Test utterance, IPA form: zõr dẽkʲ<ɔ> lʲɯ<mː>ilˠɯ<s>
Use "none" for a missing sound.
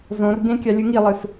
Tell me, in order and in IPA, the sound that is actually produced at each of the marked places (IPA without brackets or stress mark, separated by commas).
ɑ, ŋ, s